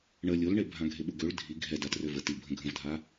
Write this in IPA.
ɳə lʲolɳe bʱãɡʱeɓuɡøɭ dʱi ɡʱɛ datrøvə tibʱə̃ ɡʱə̃vdʱa

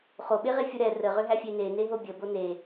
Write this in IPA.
χoɓeʁefʲu ɾɛ rəʁʏɦæfʲe neneɦo bʲəbo ne

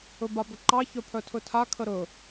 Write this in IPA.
ɵbabɵǃɑ çœpʰœtʰɵtʰa kʰəɾɵ

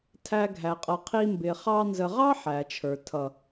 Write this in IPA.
tʰæ˧ɡʱæ˨ qʼʌ˨qʰi˧ mbɪ˨ χɑ˧ nzə˨ʁɑ˦ ħæ˨t͡ʃʰə˞˨ tʰʌ˨

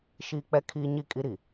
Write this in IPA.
ʃiː˦k͡pɛ˦kʰiː˦ɲi˦˨ kʼi˦ɾi˨

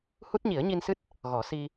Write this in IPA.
hu˦˥t̚ɲi˨˩˦ə̯ ɲi˧nsɨ˦˥t̚ | ɣɔ˨˩˦si˧

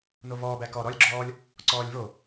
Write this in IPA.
novɔːbæ kɔ ɾɔlʲɡ͡ǁɔːlʲ | ǀɔːlʲvo

